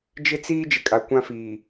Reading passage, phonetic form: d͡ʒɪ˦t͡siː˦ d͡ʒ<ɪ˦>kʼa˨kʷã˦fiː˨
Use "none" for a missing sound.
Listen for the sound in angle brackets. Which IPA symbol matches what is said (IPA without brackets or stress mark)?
ɪ˨